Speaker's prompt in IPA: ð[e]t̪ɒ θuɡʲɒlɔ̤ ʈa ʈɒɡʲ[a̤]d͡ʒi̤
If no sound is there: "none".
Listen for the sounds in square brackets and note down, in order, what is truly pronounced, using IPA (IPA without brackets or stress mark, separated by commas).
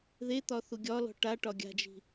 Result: e, a̤